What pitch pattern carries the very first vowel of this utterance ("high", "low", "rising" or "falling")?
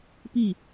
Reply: falling